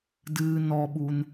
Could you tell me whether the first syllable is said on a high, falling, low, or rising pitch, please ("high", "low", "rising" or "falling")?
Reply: low